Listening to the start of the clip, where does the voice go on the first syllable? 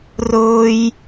high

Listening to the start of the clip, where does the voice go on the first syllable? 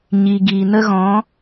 low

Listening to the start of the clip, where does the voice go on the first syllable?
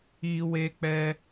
high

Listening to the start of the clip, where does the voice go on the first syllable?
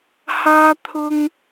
high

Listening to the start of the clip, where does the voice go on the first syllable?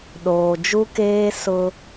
low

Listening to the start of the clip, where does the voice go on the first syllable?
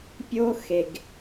high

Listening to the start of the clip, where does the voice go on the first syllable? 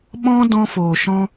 high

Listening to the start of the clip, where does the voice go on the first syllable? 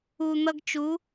low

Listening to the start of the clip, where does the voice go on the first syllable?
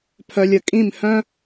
low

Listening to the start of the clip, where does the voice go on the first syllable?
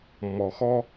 low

